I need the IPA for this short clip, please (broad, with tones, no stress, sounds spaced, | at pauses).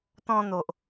t̪ ɔ̃˧ n̪ o˨ ʔ